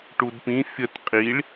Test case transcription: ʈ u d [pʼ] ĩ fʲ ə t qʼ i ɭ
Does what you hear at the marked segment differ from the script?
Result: yes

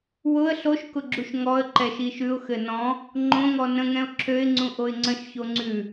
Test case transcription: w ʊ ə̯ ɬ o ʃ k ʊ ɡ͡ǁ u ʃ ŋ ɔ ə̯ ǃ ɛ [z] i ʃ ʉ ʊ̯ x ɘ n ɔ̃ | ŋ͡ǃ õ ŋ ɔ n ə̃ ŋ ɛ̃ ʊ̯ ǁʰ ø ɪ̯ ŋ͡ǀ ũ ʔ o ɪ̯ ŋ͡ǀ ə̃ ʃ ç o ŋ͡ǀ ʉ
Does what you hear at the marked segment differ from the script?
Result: yes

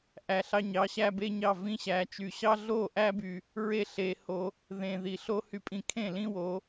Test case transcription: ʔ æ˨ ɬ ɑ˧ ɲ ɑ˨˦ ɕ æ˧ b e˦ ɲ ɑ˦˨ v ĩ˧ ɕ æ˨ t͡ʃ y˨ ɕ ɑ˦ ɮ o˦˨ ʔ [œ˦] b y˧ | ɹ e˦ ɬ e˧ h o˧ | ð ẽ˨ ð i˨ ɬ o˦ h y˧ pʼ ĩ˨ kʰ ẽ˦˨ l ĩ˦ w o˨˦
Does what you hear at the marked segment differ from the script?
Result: yes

